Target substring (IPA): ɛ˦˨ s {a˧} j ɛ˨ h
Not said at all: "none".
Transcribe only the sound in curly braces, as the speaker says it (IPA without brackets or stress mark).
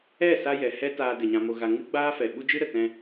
a˧